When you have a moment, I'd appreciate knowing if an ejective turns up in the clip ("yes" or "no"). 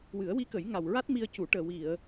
no